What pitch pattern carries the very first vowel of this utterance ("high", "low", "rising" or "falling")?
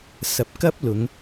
low